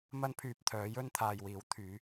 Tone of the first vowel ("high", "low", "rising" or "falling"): high